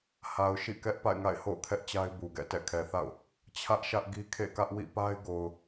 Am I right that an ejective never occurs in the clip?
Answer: yes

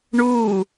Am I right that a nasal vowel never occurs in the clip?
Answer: yes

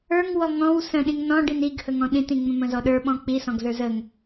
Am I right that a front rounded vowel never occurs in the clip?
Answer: yes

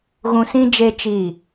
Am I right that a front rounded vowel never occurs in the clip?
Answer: yes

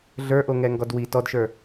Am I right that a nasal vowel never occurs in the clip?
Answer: yes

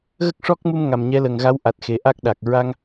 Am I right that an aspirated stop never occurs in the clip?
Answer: yes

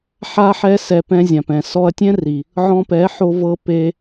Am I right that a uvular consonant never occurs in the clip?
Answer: yes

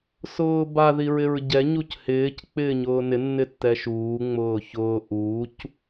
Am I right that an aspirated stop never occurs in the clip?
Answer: yes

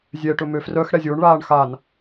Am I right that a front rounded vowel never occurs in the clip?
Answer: no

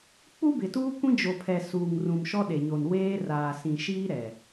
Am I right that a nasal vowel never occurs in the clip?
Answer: no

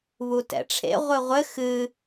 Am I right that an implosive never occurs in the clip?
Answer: yes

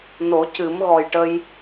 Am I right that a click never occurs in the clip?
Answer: yes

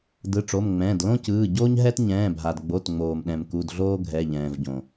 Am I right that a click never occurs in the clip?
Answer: yes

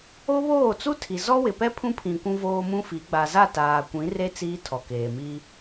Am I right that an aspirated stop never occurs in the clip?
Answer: no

